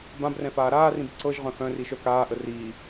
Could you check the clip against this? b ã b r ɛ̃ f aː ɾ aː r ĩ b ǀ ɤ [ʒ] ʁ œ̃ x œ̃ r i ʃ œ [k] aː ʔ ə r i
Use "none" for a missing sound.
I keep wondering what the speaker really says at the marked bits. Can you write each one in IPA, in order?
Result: ʒ, k

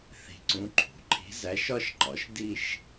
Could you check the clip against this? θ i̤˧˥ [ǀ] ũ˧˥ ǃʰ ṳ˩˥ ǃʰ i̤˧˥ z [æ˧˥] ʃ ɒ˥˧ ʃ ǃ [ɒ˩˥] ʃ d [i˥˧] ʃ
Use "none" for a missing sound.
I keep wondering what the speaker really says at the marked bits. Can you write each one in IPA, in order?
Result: ǀ, æ˧˥, ɒ˩˥, i˥˧

